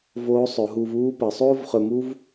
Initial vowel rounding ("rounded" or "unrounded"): rounded